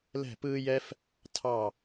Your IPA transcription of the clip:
lɛ̤˥˧pɯː˥jɛ˥f | tʰɑ˥˧

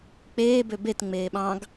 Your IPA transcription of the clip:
k͡peː bøbet ŋ͡meːɓɑ̃ɡ

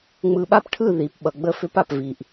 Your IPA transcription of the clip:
ŋ͡mɯ˨ɓa˦pʈʰɯ˦˨ ði˨pɓʌ˨ɡ͡bə˦fʏ˦p a˨pvi˨ʔ

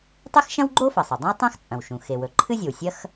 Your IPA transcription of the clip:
tˤe˥xʃɐ̃˥wɡ͡ǃo˥ fɐ˩sˤo˩dˤĩ˥w tˤã˥xt͡sʼɐ̃˩wʃũ˩ xe˩wɵ˩ ǃʰɨ˥zʲo˩wsʲɐ˥x

